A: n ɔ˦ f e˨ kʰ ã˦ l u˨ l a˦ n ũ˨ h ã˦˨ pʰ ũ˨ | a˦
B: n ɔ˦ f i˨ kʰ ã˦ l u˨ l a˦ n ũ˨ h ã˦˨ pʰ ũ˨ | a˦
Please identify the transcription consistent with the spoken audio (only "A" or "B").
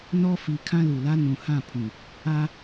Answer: B